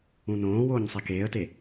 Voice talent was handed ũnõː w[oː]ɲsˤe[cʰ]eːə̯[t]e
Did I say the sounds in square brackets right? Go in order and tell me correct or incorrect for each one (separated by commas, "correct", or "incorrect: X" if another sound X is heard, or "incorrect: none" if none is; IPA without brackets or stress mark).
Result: correct, incorrect: k, correct